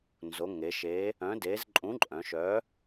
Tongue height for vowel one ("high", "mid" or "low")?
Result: mid